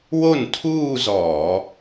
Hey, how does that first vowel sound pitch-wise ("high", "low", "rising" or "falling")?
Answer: falling